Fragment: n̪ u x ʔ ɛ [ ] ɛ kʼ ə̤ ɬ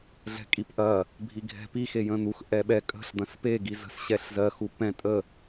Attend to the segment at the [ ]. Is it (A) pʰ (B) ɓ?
B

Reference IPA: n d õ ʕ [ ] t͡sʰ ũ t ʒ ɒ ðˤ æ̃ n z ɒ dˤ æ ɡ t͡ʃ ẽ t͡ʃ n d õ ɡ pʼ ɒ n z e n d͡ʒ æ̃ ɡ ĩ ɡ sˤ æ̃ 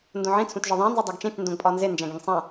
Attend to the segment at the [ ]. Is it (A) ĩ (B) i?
A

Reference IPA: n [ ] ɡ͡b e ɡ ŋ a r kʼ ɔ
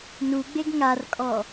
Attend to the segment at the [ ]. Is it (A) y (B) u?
B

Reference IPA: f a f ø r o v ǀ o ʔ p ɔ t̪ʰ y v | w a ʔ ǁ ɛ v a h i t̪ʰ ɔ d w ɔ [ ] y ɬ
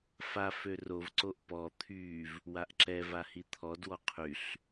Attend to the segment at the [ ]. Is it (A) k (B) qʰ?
B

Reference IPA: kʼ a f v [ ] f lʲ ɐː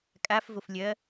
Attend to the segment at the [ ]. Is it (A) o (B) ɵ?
A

